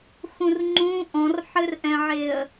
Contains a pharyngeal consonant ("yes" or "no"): yes